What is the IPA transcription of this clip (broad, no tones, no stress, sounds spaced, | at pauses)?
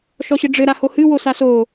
ʃ ɔ ɕ ɘ ɖ͡ʐ ɘ ɾ a h o h ɨ w o s a s o